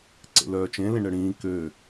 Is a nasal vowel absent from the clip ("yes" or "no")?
no